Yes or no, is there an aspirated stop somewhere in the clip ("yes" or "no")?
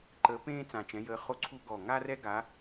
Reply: yes